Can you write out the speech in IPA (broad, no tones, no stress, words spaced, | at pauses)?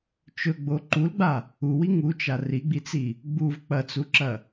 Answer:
t͡ʃɵɡ͡bo ǃulɡ͡ba | uwi ŋut͡ʃa riɡ͡bit͡si | ɡ͡buv k͡pɐt͡suǁɐ